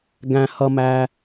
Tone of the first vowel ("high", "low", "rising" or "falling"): low